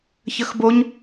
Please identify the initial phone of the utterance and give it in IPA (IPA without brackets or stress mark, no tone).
ç